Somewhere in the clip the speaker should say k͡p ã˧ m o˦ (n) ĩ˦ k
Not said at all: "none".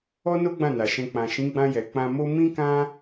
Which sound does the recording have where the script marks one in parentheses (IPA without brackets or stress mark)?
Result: m